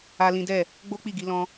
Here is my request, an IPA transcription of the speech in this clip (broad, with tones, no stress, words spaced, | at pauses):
a˦lĩ˦ dɛ˦˨ | ɡ͡bo˦k͡pi˦˨ ɡi˧lɔ̃˧